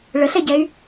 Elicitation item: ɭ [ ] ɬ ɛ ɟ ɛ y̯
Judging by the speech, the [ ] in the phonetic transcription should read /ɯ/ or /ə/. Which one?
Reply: ə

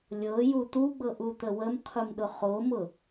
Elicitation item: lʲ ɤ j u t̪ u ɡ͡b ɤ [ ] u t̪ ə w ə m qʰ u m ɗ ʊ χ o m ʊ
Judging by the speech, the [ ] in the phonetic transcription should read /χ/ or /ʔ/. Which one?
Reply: ʔ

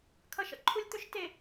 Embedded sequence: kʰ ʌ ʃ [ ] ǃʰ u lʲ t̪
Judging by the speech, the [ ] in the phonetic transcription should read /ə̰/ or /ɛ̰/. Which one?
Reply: ə̰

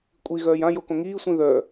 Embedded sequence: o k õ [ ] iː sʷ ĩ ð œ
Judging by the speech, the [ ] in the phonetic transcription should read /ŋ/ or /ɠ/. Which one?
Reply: ŋ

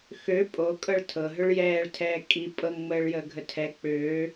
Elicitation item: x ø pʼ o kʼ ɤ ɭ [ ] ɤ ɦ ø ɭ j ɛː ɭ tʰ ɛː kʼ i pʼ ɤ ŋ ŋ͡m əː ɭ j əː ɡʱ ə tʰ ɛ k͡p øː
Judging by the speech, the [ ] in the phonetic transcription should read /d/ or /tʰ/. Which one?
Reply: tʰ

